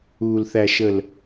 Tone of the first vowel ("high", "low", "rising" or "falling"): low